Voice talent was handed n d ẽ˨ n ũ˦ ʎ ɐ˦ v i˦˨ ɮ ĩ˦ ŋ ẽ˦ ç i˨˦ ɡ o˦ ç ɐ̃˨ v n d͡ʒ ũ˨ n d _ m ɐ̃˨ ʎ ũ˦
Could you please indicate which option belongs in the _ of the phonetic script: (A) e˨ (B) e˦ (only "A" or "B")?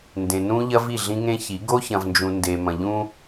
A